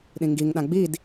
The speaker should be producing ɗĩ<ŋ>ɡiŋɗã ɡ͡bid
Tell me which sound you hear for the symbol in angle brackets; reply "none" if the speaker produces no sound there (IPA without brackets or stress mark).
ŋ